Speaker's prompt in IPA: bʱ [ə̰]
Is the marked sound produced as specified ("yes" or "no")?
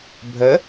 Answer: no